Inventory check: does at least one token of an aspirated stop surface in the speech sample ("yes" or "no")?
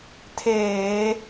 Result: yes